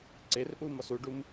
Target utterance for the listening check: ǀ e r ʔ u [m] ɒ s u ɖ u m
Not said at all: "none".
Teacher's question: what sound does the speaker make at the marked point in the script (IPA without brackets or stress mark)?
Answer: m